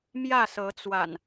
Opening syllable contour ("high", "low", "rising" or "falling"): falling